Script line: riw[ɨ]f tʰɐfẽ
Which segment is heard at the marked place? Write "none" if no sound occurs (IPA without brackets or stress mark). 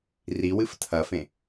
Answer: ɨ